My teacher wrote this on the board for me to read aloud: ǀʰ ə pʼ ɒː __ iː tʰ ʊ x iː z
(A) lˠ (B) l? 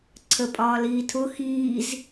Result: B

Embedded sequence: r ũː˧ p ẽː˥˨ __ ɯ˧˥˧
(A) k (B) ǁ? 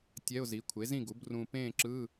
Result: B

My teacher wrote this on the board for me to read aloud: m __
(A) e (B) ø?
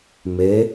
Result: A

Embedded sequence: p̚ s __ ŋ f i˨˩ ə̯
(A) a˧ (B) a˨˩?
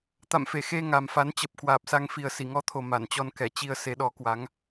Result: A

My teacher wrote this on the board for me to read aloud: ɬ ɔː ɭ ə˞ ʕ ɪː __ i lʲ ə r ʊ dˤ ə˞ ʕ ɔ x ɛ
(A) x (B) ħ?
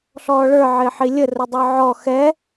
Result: B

